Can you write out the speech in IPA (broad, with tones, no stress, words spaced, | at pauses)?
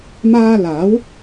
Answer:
maː˧ laː˨˥w